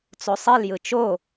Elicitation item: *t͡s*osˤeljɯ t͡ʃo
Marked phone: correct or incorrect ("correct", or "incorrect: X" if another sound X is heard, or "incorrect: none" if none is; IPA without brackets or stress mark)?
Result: correct